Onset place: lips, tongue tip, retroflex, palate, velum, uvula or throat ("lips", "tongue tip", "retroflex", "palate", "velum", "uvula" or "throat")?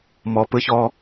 lips